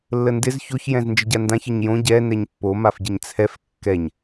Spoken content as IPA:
lː ə n d ɪ z ç o ç j ɛ̃ z n d͡ʒ ə ɟ a n d ã ç ə ɲ j õ ɟ ɛ n ɛ ɲ pː o m a f ɟ ɪ ɲ t͡sʰ ɛ f kː ɛ ɲ

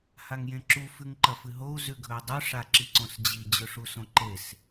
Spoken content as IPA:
h a ŋ j ẽ ǁ u f ʉ ŋ ǃ ɐ f ɨ ɦ o u̯ z ʉ ɡʱ ɵ i̯ dˤ ʉ ʂ a ǁ i ǀ õ s d͡ʑ i d͡ʑ ɵ ʂ u s õ ǃ e s

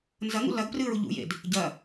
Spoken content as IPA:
n z ɐ ŋ ṵ l ɐ ɡ p r ɨː ɹ u ʎ ṵ j ḛ d | ɟ ɐ

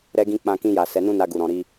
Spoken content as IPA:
ɾ ɛ˧ ɡ ĩ˧ k͡p ã˧ k ĩ˧ j a˨ s ɛ˨˦ n ũ˦ n a˧ ɡ u˨ ɾ ɔ̃˨ ɾ i˧

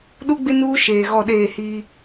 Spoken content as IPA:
ɗ u˦ ɡ͡b ɪ˦ n uː˦ ʃ eː˨ ɣ ɔ˦˨ ɗ eː˦˨ h iː˦

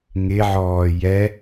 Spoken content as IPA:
ŋ ɪ ʕ ɔː j ɛ

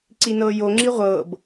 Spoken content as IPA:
ǀ i n ɤː j o ŋ͡ǁ i ʁʷ ɤː b

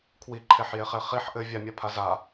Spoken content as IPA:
kʰ w i ǃʰ e ħ j e χ e χ i ħ ʔ ɘ vʲ a mʲ a pʰ a z a

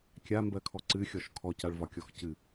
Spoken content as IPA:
kʲ a m b ɜ kʰ ɔ ǀ ɨ xʲ ɔ ʃ kʰ ɔ c a ɭ v ɒ kʲ ɔ x c ɨ

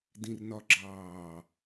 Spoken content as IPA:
d ĩ r n ɒ ɡ͡ǁ ɑː

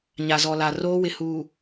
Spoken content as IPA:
ɲ a˨ z ɔ˨ l a˨ r oː˦ w ɪ˨ h uː˨

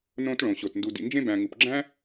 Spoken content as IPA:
n õ˧ t ɭ õ˨ ɕ o˨ t n d u˨ d ḭ˨ n d͡ʒ ẽ˧ b æ̃˨ ŋ u˨ p ɡ͡ǁ æ̃˦

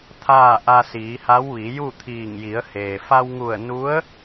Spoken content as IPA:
t̪ʰ aː˥˨ ʔ a˧ s iː˩˧ h a˧˥ w ʋ i˩˧ j u˥˨ t̪ʰ iː˧˩ ŋ j i˩˧ ə̯ h eː˩ f a˧ w ŋ u˧˩ ə̯ n u˧˥ ə̯

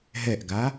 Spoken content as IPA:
ɦ ɛ ʔ ɡ a

